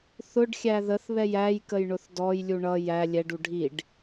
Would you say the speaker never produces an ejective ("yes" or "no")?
yes